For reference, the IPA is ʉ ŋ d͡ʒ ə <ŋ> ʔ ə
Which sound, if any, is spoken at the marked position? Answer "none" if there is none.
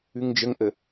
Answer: ŋ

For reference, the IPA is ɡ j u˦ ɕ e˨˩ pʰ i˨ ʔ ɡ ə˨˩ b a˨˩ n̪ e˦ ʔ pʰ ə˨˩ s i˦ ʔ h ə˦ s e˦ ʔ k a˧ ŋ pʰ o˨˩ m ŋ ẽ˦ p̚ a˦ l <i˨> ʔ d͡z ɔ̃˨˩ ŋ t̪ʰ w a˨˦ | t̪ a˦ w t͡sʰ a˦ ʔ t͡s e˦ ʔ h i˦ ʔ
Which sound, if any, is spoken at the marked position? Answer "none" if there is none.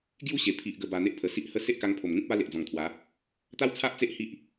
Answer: e˨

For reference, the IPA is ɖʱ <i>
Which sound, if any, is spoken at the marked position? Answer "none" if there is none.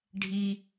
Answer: i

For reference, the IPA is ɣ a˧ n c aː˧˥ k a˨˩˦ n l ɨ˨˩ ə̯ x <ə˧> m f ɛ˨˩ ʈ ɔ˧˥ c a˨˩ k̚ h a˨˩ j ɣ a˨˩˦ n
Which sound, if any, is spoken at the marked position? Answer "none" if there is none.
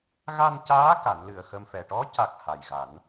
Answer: ə˧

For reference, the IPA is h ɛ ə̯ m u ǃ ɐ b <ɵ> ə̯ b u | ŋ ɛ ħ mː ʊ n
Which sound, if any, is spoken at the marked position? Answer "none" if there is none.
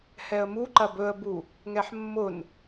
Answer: ɵ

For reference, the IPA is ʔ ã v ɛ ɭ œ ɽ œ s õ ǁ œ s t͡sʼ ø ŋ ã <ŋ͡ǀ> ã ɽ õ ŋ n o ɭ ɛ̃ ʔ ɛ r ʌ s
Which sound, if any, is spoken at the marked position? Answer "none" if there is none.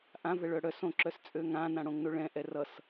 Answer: n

